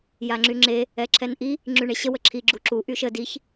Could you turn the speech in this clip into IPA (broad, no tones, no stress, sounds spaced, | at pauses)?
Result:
j a ŋ͡ǁ y ŋ͡ǁ e | ɛ ǁʰ ɛ n ʔ i | ŋ͡ǁ y ɳ e ɕ ə w ə ǁʰ i ɡ͡ǁ u ǁ u ʔ y ʃ ə d i ç